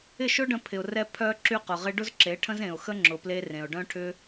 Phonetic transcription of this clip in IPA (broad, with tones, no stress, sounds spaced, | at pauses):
ɪ˦˨ ʃ ʊ˦ ɖ ə̃˧ pʰ ɪ˨ ʊ̯ r ɛ˦ pʰ œ˧ ǁ y˦ q ʊ˨ ʁ ɪ˦ ɖ ʊ˦ z ǁ e˨˦ ʈʰ ə̃˦ z ẽ˨ ʊ̯ x ə˦ ŋ͡ǁ ʊ˨ p l e˧ r ẽ˨ ʊ̯ ɖ œ̃˦ ʈʰ ʏ˦